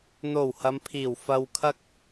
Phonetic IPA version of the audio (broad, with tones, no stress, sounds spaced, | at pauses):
n̪ o˨˩ w h ɐ˨˧ m pʰ iː˨˩ w f ɐ˨ w kʰ ɐ˥ k̚